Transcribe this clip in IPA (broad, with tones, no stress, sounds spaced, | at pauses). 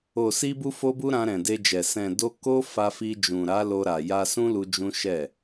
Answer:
o˨ s i˧ b u˦ f o˦ b u˦ ɾ ã˧ ɾ ɛ̃˨ d e˧ d͡ʒ ɛ˨ s ɛ̃˨ d o˧ k o˦ f a˧ f i˧ d͡ʒ ũ˨ ɾ a˨˦ l o˧ ɾ a˨ j a˧ s ũ˦ l u˧ d͡ʒ ũ˦ ʃ ɛ˦˨